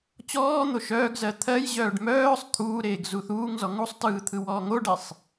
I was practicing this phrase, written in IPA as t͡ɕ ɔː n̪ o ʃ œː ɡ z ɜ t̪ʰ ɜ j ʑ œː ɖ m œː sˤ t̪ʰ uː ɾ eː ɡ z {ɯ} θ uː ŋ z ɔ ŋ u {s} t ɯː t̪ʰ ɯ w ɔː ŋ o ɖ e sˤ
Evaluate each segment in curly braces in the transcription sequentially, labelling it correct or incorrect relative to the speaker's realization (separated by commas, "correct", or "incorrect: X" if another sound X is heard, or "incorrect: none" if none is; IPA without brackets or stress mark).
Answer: incorrect: u, incorrect: sˤ